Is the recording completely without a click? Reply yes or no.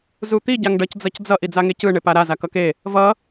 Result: yes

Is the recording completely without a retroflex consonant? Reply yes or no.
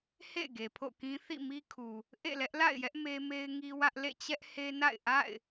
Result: yes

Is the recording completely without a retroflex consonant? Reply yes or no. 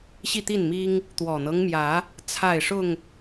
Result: no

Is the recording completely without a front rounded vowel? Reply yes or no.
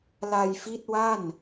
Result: yes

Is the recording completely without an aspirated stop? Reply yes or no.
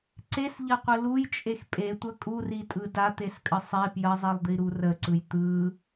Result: yes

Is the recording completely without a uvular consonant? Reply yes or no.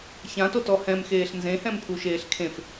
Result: yes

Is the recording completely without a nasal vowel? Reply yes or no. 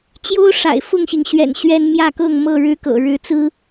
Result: yes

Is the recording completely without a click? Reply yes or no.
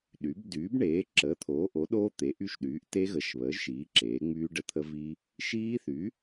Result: no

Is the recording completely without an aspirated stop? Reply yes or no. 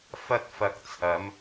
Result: no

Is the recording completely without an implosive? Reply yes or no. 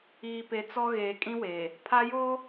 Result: yes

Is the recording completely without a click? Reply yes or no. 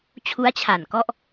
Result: yes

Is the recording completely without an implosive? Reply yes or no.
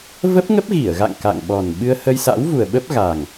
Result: no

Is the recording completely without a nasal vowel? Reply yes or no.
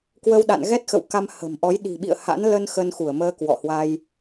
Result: yes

